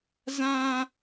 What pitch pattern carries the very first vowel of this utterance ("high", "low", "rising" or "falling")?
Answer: high